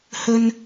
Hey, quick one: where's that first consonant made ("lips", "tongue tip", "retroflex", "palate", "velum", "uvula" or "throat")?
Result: throat